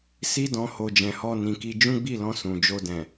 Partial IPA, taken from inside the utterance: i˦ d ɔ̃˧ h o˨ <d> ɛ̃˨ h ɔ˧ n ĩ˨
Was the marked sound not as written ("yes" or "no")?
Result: yes